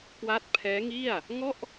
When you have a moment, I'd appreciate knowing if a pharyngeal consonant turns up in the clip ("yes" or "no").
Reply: no